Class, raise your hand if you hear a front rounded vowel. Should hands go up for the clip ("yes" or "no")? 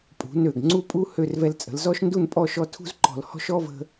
yes